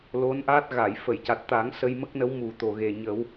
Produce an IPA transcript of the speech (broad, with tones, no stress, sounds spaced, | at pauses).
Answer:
l o˧˥ n ʔ a˦˥ t̚ ɣ a˨˩˨ j f ə˨˩˨ j c a˨˩ t̚ t̪ a˨˩˦ ŋ s ə˧ j m ə˦˥ k̚ n ə˧˥ w m u˨˩ t̪ o˨˩ ɣ e˨˩ ɲ ə˨˩˦ w